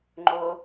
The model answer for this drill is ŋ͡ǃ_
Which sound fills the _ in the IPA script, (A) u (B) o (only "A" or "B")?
B